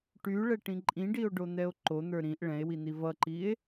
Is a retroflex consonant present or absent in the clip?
present